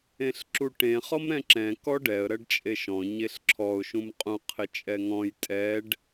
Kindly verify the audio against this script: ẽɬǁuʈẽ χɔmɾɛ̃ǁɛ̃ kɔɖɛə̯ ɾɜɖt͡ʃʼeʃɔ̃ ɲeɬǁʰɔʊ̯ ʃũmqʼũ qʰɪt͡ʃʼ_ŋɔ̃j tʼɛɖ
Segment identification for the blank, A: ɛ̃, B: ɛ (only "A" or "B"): B